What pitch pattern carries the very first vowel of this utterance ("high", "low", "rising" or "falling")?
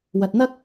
low